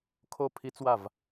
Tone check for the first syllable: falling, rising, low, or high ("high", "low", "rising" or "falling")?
falling